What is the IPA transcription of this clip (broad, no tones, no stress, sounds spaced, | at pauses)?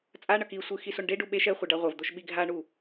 t͡sʼ a ɳ ʌ k i sʷ ɯ x i s o ɳ ɖ e ɖ u ɓ e ʃ ɛ χʷ ʌ ɖ a ʁʷ ʌ v d̪ o ʃ ɓ i ɡʱ a ɳ u